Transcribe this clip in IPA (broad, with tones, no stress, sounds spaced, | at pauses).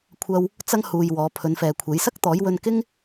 kʷʰ ɐ˧ w | t͡s ɐ˥ ŋ h uː˧ j w ɔː˨˧ pʰ ɵ˨˧ n f ɛː˨ kʷʰ e˨˥ j s ɐ˥ k̚ t̪ ɔː˨˥ j w ɵ˧ n k ɪ˥ ŋ